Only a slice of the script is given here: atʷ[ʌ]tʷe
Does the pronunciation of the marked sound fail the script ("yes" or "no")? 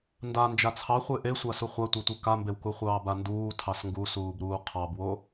yes